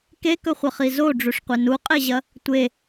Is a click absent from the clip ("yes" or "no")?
yes